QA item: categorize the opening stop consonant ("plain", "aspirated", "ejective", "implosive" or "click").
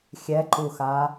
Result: click